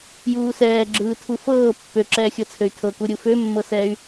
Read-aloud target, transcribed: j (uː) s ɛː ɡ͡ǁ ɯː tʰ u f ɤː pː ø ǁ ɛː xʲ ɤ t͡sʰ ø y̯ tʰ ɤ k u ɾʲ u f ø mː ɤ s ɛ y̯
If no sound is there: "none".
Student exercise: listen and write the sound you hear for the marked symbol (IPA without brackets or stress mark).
uː